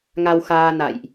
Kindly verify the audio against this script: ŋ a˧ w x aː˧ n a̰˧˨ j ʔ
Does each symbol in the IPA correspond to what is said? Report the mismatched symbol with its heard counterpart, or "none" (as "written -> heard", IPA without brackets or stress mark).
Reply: none